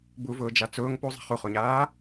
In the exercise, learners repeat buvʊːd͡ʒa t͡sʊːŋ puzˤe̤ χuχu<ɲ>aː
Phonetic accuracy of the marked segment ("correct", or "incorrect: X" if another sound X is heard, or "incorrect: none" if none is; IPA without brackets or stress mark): correct